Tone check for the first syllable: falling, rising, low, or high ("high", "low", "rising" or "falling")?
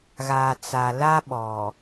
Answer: low